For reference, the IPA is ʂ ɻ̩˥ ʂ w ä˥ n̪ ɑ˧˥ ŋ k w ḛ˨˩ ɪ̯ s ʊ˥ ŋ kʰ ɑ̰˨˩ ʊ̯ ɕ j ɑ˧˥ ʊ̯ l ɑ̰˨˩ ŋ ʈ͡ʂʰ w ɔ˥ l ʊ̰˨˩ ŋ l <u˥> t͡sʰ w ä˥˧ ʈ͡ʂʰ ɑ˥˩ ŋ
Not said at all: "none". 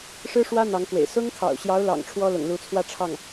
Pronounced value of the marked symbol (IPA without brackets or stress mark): u˧˥